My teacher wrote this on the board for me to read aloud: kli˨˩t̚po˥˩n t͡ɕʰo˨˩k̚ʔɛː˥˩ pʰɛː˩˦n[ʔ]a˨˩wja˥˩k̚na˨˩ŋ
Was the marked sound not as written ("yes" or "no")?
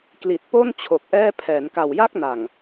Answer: yes